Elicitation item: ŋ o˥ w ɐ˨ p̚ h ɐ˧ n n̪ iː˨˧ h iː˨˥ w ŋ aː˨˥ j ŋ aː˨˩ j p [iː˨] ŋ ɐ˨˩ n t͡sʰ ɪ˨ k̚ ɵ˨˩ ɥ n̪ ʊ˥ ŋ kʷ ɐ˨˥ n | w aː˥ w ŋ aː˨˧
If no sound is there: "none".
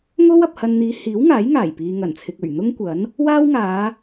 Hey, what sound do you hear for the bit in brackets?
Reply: iː˨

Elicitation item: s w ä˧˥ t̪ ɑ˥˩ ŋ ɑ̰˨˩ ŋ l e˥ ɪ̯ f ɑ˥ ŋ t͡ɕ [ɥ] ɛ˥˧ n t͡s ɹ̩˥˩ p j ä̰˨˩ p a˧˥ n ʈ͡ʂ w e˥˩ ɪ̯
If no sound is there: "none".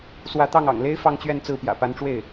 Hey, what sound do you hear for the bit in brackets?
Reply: ɥ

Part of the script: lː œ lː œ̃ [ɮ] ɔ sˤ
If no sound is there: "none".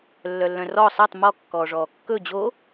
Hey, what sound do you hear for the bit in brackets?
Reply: r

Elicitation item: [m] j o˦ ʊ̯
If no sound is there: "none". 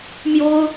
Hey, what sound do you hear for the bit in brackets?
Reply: m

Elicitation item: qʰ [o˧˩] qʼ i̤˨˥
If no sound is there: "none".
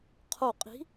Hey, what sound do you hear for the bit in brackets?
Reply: o˧˩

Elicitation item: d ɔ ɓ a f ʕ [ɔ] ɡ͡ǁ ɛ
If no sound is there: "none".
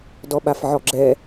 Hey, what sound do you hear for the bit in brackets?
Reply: ɔ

